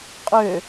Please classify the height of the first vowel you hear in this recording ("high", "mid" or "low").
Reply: mid